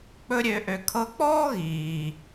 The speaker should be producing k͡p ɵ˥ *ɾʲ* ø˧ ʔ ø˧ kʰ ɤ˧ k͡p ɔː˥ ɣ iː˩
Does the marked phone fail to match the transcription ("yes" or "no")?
no